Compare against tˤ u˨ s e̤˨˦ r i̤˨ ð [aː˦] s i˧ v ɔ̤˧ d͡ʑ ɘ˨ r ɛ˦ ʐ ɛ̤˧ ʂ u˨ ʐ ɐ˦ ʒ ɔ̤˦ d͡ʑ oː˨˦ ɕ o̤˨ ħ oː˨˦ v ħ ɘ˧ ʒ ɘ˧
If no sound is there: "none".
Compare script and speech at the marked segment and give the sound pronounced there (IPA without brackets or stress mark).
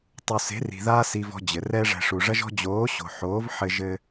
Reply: aː˦